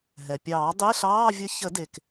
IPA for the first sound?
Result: ɦ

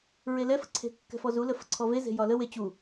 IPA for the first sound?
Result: ɹ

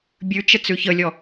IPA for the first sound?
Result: bʲ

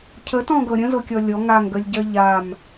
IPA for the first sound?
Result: cʰ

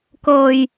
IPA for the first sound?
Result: k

